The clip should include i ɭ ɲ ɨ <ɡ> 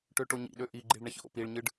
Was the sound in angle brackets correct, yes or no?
no